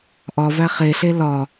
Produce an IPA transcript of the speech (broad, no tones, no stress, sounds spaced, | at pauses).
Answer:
ʔ ɒ v æ χ e ɬ e l ɒ